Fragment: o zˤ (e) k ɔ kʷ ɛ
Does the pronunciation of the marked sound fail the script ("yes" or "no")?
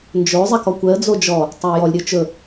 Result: yes